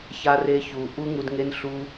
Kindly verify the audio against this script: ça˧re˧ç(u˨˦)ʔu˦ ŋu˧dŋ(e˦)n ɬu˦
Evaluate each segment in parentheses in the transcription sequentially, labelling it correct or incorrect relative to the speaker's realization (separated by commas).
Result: incorrect, correct